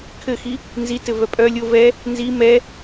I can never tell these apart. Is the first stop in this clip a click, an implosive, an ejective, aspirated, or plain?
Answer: aspirated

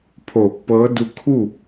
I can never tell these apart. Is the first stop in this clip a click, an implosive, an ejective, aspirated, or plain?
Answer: aspirated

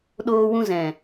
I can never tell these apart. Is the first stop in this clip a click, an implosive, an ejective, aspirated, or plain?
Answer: implosive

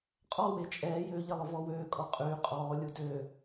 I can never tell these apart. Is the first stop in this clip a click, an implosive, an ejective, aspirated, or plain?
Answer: ejective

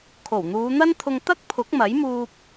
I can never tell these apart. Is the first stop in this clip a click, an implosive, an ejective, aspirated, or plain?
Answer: aspirated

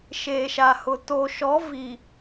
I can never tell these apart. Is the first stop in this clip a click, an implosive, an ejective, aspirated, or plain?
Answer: plain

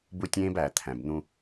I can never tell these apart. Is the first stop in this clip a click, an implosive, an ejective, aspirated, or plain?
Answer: plain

